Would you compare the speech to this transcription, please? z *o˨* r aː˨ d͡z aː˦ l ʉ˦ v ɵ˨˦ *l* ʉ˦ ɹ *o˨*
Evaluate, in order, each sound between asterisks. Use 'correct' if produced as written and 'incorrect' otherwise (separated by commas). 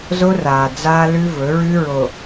incorrect, incorrect, correct